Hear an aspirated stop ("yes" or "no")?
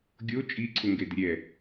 yes